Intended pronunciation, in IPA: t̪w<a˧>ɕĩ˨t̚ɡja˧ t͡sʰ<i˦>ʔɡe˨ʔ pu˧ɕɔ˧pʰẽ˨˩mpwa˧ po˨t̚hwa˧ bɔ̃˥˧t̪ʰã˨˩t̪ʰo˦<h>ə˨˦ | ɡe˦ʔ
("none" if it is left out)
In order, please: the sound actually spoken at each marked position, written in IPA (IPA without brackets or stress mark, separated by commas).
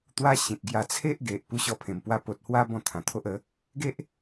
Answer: a˦, e˦, ʔ